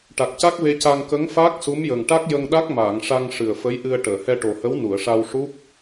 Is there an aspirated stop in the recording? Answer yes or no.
no